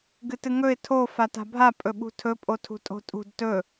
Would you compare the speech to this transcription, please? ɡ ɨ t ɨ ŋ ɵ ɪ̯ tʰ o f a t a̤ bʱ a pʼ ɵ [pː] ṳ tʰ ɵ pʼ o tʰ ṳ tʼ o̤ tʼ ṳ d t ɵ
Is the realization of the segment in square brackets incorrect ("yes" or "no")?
yes